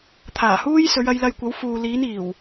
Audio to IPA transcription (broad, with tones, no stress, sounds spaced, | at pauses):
t̪ʰ aː˨˩ h uː˥ j s ɵ˨˧ ɥ ɐ˨˧ j l ɐ˧ j kʷ ɐ˨˥ w f uː˨ l iː˨˧ n iː˨˩ w